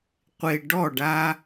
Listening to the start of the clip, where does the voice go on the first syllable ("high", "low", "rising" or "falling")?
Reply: low